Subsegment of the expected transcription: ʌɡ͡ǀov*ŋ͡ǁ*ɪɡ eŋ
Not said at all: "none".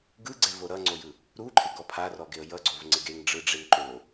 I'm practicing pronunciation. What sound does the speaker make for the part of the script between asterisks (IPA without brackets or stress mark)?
ŋ͡ǀ